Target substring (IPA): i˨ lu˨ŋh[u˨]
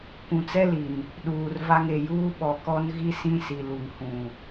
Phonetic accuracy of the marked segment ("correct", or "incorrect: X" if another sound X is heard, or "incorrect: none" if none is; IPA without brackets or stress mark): incorrect: ũ˨